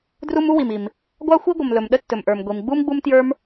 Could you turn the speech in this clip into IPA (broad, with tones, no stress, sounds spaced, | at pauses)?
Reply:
d r u˥ m u˥ w i˨ m i˨ m | ɡʷ ɑ˥ xʷ i˥ ɡʷ ə˨ m l ɵ˨ m ɗ ə˥ tː ɵ˨ m ʔ ə˞˨ m ɡʷ i˨ m ɡ͡b u˥ m ɡ͡b u˥ m t j ə˞˥ m